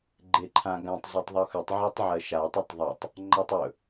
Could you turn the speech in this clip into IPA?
ɡ͡ǃ e ǃʰ ã ɡ ã tˤ zˤ y tˤ ðˤ y x ɵ tˤ ʕ ɜ tˤ ʕ ɜ ʃ a tˤ ɵ tˤ ðˤ a tˤ | ŋ͡ǃ a tˤ ɵ

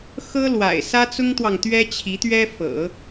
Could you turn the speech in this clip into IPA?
x ɤ˥ l w a̰˨˩ ɪ̯ s ä˥ t͡s ʊ˥ ŋ t̪ w ɑ˨ ŋ t̪ ɥ ɛ˥ t͡ɕʰ i˧˥ t̪ ɥ ɛ˥ f ɤ̰˨˩˦

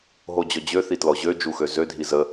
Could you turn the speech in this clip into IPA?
ɦ o d͡ʑ ɔ d͡ʑ ø θ i t l ɔ ʑ ø d͡ʒ u x ø z ø dʱ i z ə

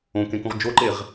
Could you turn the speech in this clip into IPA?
õ k ẽ k ũ ʁ d͡ʒ o ǃ e ʁ

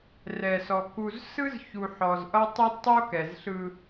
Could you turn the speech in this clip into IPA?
r ɛ˨ s ɔ˨ k u˨ z s ɯ˦ z ç u˨ ħ ɔ˨ z ʔ ʌ˦ tˤ ʌ˦ d tˤ o˦ k ɛ˨ z ɬ ɯ˦

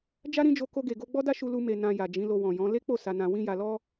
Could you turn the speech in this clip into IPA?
d͡ʒ a˦ ɾ ĩ˦ d͡ʒ o˧ k o˧ ɡ e˨ ɡ o˧ ɡ͡b ɔ˦ d a˦ ʃ u˧ l u˧ m e˧ n ã˧ j a˨ d͡ʒ ĩ˨˦ l o˧ w ɔ̃˨ j ɔ̃˨˦ l e˦ k͡p o˦˨ s a˧ n ã˧ w ĩ˦ j a˧ l ɔ˦

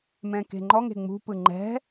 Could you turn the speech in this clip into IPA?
m ɛ̃ k e̤ ŋ͡ǃ ɔ ŋ e̤ ŋ͡m ṳ p ɯ ŋ͡ǃ ɛ̤

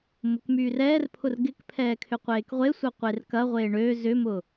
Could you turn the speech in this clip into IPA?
m ʊ k m yː r ɛː r pʰ ʊ r ɡ ɪ k pʰ ɛː kʰ ʏ qʷ eː k ʁʷ e sʷ œ qʷ e r k ɐ ʁʷ eː ɳ ø z ʏ m ʊ

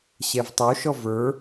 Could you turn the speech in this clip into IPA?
ɕ ɛ v tˤ o ʃ ɔ v ə˞

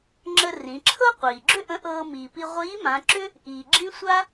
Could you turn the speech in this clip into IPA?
ŋ͡ǁ ə˧ r ĩ˩˧ ǁʰ ɤ˥ qʷ iː˩ ɡ͡ǁ ʏ˥ ʔ ə̃˧˥ ʔ ɤː˧ m iː˩ p i˧ ʁʷ iː˧˥ m ã˩˧ ǁ ʏ˥ | ʔ iː˩ ɡ͡ǁ ĩ˥ sʷ a˥

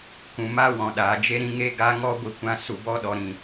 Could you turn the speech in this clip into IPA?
k ũ˨ m a˦ w ɔ̃˨ ɗ aː˨ d͡ʒ e˦ ɾ ĩ˧ ŋ e˦ ɡ a˦ ŋ ɔ˦ ɡʷ i˧ kʷ ã˧ s u˨ b ɔ˦ ɗ ɔ˨ ɾ ĩ˨

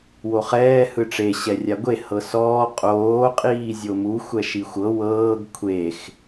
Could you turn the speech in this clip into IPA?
w o χ ɛː h ɯ ʈ͡ʂ e ɕ ɛ rʲ a ɡʷ e h ɤ s ɔː qʼ oː qʼ iː zʲ o m u xʷ ɛ ʃ i xʷ ɤ w ɤː ɡ kʷʰ e x

